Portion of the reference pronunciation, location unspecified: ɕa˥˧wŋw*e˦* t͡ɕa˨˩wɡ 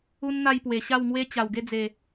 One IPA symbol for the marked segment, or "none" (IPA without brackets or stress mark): e˦